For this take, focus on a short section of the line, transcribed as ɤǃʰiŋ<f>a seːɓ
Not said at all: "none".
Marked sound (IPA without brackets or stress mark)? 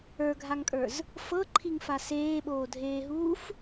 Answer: f